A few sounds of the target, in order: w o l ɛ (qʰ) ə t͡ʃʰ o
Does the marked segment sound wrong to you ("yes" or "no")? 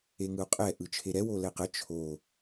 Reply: yes